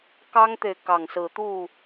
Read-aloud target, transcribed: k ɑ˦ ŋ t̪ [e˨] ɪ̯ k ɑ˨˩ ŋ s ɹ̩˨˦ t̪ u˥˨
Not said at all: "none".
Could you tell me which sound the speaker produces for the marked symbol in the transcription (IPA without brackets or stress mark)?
e˨